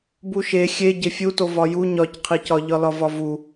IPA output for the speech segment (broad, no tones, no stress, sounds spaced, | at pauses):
b u ʃ e xʲ e ɟ e fʲ u t o v ɒ j u ɲ ɒ c qʰ i c ɒ ʎ ɒ l ɒ v ɒ v u